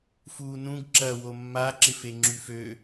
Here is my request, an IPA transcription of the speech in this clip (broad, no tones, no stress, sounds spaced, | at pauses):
f uː n ũ ɡ ǁ ɐ w o mː a ǁ ɪ f e ŋ͡ǁ y f ø